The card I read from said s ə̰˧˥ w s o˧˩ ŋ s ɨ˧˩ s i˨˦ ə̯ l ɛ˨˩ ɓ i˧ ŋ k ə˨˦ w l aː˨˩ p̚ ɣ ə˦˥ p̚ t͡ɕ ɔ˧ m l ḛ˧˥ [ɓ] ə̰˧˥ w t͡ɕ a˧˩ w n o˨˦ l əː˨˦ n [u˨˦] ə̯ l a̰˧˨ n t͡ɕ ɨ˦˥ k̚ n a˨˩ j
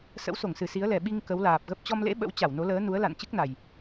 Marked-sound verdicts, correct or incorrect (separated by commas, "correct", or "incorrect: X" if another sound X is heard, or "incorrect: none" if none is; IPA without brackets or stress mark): correct, correct